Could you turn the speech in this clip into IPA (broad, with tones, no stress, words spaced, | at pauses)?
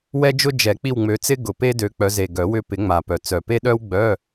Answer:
wɛ˥d͡ʒʊ˥ d͡ʒɛ˨˩˦k͡pi˦˨w ŋ͡mø˨˦t͡sɪ˥ ɡʊ˨˩pe˥dø˨˦ k͡pœ˨˦ze˨˩ ɡœ˨˩˦wʏ˦˨ pɪ˨˩˦ ŋ͡ma˨˩pœ˨˩ t͡sœ˨˩pe˥ ɗœ˥wɡ͡bœ˧˥˧